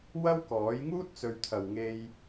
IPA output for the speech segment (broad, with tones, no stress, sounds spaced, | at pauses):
w ɐ˥ w k ɔː˨˥ j ŋ uː˥ t̚ t͡s ɵ˨˧ ɥ t̪ʰ ɐ˨ w ŋ e˧ j